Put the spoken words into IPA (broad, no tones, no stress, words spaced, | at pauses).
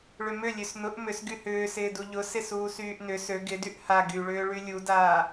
ɭʏmʏ lʲøsnʊʔ mʏsɡy hʏːsɪːdu ʎʊ sɪsuːsyːʔnʏ sø ɡɪdyʔ ha ɡyɭʏː ɭylʲudaː